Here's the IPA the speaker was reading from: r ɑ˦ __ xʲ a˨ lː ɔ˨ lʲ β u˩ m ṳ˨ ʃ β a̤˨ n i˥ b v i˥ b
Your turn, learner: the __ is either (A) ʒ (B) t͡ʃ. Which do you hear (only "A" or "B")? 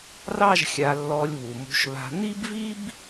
A